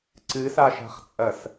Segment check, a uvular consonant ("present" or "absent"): present